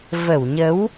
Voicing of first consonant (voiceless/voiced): voiced